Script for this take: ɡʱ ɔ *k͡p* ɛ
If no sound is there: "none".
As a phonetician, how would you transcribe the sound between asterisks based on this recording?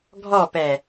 p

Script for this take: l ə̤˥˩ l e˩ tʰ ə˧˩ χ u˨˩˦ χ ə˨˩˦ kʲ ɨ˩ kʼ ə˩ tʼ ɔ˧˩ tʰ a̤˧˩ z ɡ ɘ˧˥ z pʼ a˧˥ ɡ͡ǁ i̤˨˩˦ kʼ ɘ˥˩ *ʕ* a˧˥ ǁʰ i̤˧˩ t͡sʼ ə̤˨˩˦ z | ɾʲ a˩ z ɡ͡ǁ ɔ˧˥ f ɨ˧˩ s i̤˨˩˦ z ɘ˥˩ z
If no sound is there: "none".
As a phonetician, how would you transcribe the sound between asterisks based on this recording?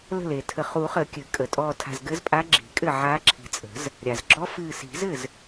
ʕ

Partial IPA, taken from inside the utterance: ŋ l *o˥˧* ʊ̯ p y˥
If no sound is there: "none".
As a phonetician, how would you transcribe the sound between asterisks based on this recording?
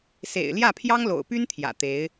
o̰˨˩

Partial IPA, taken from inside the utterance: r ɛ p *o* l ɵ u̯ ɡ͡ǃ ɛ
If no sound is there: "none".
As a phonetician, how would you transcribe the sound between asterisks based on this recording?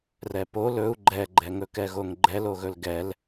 o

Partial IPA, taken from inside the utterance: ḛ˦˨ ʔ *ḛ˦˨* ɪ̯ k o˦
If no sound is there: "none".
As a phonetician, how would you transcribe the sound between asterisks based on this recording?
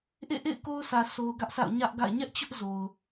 ḛ˦˨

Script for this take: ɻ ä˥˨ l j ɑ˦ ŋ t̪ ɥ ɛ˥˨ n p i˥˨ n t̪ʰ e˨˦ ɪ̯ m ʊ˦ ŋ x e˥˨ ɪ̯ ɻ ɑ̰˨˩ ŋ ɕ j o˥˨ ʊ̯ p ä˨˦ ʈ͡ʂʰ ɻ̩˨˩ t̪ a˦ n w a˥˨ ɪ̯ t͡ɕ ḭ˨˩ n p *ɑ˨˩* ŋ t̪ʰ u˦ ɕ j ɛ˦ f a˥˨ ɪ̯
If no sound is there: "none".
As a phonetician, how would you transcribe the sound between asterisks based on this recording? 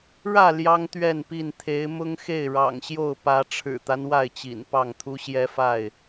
ɑ˥˨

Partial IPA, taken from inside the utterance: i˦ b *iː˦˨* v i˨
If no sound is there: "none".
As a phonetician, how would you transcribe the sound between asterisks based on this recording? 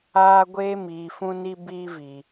iː˦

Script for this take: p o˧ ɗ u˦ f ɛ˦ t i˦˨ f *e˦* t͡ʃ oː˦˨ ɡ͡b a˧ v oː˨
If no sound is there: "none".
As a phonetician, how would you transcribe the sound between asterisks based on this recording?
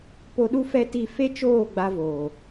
e˦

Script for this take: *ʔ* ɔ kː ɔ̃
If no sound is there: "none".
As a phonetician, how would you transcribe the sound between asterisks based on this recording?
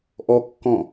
ʔ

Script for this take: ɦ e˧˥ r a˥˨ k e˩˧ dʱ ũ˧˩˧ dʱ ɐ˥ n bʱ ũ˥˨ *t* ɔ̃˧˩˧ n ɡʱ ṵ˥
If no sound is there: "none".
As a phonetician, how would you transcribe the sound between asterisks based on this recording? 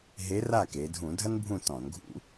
t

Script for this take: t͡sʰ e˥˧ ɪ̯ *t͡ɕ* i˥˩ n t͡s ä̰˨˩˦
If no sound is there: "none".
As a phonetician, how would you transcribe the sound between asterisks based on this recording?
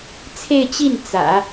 t͡ɕ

